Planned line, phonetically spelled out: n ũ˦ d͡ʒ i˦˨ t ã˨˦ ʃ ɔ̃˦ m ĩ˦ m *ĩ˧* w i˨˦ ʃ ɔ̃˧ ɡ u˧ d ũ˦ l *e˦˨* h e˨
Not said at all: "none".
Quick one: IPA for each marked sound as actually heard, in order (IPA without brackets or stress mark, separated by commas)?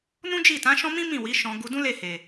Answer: ĩ˦˨, e˦˨